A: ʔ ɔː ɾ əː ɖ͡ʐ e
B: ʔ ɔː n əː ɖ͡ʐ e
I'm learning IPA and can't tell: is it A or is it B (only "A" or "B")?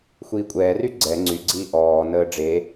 B